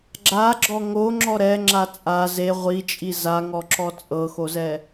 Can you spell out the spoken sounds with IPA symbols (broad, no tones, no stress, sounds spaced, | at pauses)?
ɡ͡ǁ a ɡ͡ǁ ɔ ŋ o ŋ͡ǁ ɔ ɾ ɛ ŋ͡ǁ a t͡sʼ a z e ʁʷ i t͡ʃʼ i z a ŋ ɔ ǁ ɔ t͡sʼ ɤ x o z ɛ